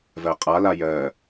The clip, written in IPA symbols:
v ɜ qʼ a l a j ɜ

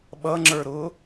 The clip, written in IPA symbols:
ɓ ʌ ŋ͡ǁ ə˞ ɾ ʊ

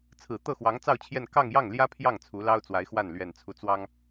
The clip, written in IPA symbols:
t͡sʰ ɹ̩˨˩ t̪ ɤ˥˩ x w ɑ˧˥ ŋ t͡s ɑ˥˧ ʊ̯ t͡ɕʰ j ɛ˥˧ n k ɑ˥˧ ŋ j ɑ˥˩ ŋ l j ä˥ pʰ j ɑ˥˩ ŋ t͡sʰ u˧˥ l ɑ˥ ʊ̯ t͡s w a˧˥ ɪ̯ x w a˥˩ n l ɥ ɛ˨˩ n t͡sʰ u˧˥ t͡s w ɑ˥ ŋ

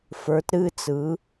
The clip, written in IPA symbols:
f ə˞˩˧ t ɾ ɨ˩˧˩ t͡s ɯ˩˧

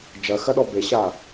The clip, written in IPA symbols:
d͡ʒ ɐ x ɐ ɗ ɔ b e ɕ a

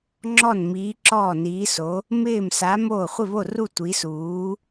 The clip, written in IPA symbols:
ŋ͡ǁ ɔ˥˨ n m iː˧˥ ǁ ɔː˥˨ n iː˧˥ s o˧˥ | m ɪː˥˨ m s a˧˥ m oː˥˨ χʷ ɪ˥˨ β o˥˨ r u˥˨ tʷ i˧˥ s uː˧˥

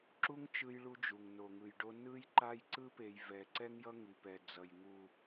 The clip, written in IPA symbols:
ǁ u˦ ŋ t͡ʃ ɯ˦ j ɭ u˦ d͡ʒ u˨ ŋ n o˨ ŋ ɯ˨ j ɖ o˦ n ɯ˦ j ǃ a˦ j ǀ ɯ˦ p e˨ j v ɛ˨ ǀ ɛ˦ ŋ j ʌ˦ ŋ i˨ p ɛ˨ d͡z ʌ˨ j ŋ u˨

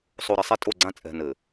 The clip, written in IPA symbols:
sˤ o˨ ɾ ɘ˨ sˤ ɛ˦ tʼ o˦˨ ɡ͡ǀ ã˦ t͡sʼ ɛ̤˨ n ɘ˨

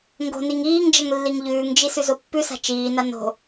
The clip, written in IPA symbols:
ŋ ɡ o̤ n i ŋ iː ŋ d͡ʒ ɐ ŋ lː i ŋ ʎ ʉː ŋ d͡ʒ i s ʉ z o pː ʉ s a̤ t͡ʃ iː n a n o̤

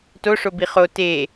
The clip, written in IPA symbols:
t o ʂ o b i χ o t e

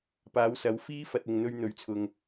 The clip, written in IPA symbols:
p aː˨˧ w s ɐ˨˧ w f iː˥ f ɐ˨ t̚ ɪ˨ ŋ n̪ ɵ˧ ɥ n̪ ɵ˨˥ ɥ t͡sʰ ʊ˨ ŋ

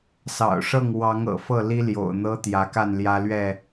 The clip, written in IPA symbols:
s ɑ̰˨˩ ʊ̯ ʂ ɤ˥˨ ŋ w ɑ˨˦ ŋ ɤ̰˨˩ f ɤ˥˨ l i˦ l j o̰˨˩ ʊ̯ n̪ ɤ˦ t̪ j ä˨˦ k a˥˨ n l j ä˦ l ɥ ɛ˥˨

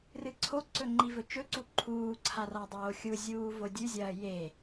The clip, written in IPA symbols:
r ɨ ǀʰ o ǀ ɵ ŋ͡ǃ i v ɵ t͡ʃ ɵ ǀ u ǃʰ uː ǀʰ a r a dˤ oː xʲ u zʲ uː v o dʲ ʉ zʲ ɐː j e

